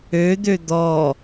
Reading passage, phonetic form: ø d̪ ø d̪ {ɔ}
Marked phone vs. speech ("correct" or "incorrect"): correct